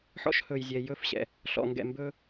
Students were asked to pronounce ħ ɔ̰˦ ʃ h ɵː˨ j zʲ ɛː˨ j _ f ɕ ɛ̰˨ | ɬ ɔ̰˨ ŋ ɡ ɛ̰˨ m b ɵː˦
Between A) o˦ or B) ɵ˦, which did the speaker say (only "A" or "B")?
B